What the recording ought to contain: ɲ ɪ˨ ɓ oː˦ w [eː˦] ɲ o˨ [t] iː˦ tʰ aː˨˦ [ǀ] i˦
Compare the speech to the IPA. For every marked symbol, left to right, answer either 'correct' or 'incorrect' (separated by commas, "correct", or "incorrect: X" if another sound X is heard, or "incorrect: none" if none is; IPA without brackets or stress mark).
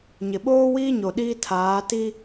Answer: incorrect: iː˦, incorrect: ɗ, incorrect: t